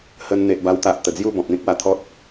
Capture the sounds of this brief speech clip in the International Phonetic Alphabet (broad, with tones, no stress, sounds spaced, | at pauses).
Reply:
h ə˧ n n̪ e˨ ʔ b a˧ w t̪ a˨ ʔ t̪ ə˨˩ d͡z j u˥˧ b ɔ̃˨ p̚ n̪ ĩ˦ k̚ w a˨˩ t̪ʰ ɔ˦ t̚